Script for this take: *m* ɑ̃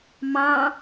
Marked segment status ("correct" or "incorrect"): correct